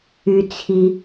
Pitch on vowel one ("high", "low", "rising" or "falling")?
high